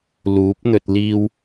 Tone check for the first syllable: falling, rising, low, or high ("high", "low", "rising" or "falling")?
rising